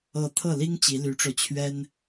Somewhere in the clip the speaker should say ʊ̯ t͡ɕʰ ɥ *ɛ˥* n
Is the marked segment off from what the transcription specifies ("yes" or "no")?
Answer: no